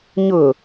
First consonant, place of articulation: palatal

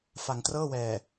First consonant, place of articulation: labial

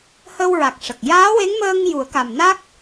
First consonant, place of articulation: glottal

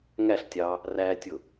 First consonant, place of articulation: velar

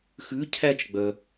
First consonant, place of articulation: velar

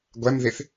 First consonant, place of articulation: velar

